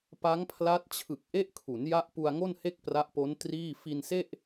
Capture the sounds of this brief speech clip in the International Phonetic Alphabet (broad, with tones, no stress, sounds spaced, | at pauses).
p a˦˥ ŋ pʰ l a˦˥ t̚ t͡ɕʰ ɯ˨˩ k̚ ʔ e˦˥ ʔ kʰ u˩˦ n j a˦˥ ʔ p u˧ a̯ ŋ o˥˩ n h e˥˩ k̚ p r a˦˥ ʔ p o˦˥ n t r iː˥˩ f i˧ n s e˥˩ ʔ